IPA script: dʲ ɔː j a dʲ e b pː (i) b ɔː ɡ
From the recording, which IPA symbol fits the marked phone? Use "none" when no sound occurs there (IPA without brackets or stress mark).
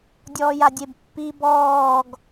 i